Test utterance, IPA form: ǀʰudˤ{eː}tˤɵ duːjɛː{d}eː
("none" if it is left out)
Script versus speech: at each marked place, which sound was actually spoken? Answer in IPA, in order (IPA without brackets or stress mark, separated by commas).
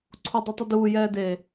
e, d